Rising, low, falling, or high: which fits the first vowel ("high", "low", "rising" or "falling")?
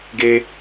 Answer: high